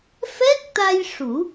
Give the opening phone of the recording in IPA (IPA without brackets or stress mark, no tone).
f